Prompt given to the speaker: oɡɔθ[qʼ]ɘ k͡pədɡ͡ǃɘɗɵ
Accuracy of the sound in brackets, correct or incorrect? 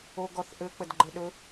incorrect